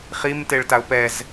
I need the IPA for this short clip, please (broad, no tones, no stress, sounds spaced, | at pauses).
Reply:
χ i m t e ɭ t a ʊ̯ p ɛ z